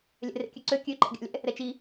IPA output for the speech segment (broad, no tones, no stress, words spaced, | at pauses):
lʲɛ̰rḛkʲøǀø kʲøǃɛ̰ɡʲa̰lʲɛ̰ | ɾɛt͡ʃi